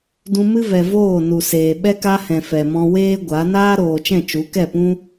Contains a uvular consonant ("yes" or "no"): no